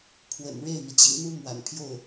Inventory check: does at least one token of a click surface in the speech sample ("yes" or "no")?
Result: no